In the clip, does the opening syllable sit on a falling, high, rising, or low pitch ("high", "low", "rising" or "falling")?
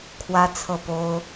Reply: high